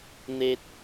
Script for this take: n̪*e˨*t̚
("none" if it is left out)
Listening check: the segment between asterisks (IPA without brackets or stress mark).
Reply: e˨